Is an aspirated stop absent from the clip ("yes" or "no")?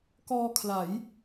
no